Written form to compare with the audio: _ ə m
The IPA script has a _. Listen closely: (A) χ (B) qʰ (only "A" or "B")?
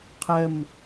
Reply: B